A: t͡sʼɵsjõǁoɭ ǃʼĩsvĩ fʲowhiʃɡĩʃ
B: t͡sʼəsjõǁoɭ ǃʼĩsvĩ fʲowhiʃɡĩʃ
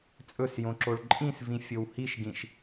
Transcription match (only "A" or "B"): A